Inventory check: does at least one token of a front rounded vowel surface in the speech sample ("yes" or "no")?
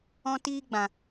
no